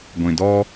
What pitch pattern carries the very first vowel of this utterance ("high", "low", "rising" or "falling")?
low